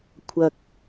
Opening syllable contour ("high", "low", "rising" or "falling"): low